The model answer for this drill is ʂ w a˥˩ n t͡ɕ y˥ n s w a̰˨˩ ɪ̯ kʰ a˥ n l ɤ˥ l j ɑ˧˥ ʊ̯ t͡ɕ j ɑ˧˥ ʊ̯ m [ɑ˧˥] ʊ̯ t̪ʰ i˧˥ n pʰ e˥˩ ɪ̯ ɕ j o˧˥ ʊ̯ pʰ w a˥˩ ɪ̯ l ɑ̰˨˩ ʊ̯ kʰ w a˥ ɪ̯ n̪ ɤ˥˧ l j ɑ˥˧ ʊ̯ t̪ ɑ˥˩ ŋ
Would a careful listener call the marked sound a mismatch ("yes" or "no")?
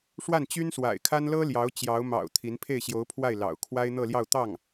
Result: yes